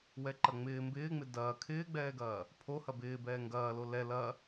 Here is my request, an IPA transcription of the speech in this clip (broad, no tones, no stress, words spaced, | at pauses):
wɛǃɐŋ͡mɪː mbɪːŋ͡mɪ dɐː kʰɪːɡ͡bɛːɡɐː | pʰo hɐbɪː bɛːŋɡɐːlo lɛ lɐ